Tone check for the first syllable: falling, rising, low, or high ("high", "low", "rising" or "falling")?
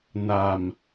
low